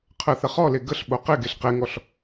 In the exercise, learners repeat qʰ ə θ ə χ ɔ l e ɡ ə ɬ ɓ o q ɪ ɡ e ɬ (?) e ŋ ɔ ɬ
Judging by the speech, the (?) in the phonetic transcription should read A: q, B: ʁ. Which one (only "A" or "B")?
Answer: A